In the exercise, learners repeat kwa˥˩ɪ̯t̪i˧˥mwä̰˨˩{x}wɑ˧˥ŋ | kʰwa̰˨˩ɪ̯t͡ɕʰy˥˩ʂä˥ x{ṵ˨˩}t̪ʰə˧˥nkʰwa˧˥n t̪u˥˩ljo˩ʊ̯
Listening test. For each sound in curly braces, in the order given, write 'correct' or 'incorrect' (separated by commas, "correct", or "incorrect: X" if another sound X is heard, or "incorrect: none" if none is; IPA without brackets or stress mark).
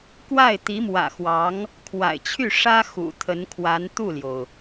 correct, correct